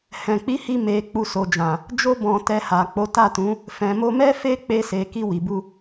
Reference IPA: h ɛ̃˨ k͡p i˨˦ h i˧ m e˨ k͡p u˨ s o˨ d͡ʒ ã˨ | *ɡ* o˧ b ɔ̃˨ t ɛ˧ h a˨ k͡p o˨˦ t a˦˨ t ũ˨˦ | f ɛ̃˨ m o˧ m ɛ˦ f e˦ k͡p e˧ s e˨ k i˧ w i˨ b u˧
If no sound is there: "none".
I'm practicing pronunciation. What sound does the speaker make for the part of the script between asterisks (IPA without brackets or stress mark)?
d͡ʒ